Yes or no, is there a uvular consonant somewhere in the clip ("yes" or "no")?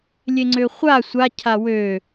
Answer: yes